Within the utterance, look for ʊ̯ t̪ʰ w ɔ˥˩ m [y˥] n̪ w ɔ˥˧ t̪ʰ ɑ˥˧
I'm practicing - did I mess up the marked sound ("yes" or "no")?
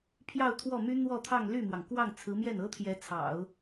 no